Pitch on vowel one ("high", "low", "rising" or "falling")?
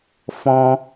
low